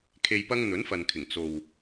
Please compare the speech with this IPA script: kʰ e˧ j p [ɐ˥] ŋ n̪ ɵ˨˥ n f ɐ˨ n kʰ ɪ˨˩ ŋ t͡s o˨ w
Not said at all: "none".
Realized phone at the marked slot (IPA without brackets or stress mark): ɐ˥